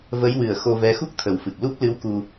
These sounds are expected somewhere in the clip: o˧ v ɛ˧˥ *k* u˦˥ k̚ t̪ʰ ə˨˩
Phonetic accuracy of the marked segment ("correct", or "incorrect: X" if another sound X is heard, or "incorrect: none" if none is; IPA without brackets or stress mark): incorrect: x